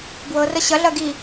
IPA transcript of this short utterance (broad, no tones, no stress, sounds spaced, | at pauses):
b w ɤ r ə ɕ ɐ ɮ ɐ ɡ i